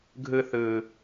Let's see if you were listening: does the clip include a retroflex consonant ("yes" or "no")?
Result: no